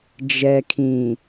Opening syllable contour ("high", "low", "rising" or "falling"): low